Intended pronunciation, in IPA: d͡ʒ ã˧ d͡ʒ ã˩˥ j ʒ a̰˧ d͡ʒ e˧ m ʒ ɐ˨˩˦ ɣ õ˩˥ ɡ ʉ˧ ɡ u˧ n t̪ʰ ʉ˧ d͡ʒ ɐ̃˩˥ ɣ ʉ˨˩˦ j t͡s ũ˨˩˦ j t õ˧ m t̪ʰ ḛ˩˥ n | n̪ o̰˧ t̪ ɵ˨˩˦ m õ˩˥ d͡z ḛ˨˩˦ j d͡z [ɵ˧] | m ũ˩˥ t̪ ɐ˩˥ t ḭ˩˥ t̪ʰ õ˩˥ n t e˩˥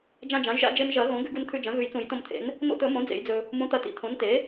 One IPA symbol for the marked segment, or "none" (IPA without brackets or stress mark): ɵ˧